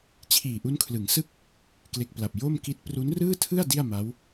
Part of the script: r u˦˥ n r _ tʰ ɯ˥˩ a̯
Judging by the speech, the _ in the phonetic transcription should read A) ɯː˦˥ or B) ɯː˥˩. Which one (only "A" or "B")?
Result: B